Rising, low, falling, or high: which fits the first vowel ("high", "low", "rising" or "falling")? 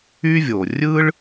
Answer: high